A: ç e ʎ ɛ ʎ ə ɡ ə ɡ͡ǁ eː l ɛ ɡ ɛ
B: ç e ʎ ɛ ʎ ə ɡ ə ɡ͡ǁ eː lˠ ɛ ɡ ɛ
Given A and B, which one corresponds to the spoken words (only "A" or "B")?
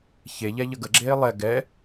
B